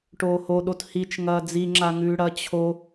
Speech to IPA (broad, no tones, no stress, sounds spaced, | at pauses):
ʈ oː h o ɗ o t h i t͡ʃ ŋ ɐː d͡z i ŋ͡ǁ a ŋ ʉː ɽ ɐ t͡ɕʰ o